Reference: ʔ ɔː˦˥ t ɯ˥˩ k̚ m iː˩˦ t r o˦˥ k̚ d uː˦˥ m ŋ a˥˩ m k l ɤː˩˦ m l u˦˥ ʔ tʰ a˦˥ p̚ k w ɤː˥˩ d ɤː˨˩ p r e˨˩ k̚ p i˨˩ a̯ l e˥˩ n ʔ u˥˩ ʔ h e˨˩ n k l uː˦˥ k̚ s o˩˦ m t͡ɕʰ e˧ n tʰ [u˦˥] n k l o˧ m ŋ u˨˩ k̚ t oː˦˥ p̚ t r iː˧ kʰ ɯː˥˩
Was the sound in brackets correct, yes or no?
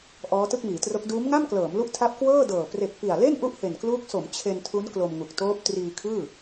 yes